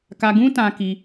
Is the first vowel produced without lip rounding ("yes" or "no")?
yes